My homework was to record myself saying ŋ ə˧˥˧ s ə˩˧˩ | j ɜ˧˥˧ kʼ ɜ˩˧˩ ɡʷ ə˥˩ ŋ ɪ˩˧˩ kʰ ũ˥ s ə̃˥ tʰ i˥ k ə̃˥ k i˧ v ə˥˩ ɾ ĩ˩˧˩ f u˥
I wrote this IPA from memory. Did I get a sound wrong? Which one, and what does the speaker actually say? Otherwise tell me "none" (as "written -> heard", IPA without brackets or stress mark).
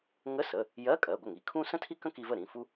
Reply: ɪ˩˧˩ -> i˩˧˩